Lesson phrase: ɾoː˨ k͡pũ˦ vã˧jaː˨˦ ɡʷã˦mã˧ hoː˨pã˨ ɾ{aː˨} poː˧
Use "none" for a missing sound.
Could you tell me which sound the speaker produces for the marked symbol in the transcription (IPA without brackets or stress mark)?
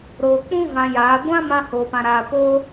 aː˨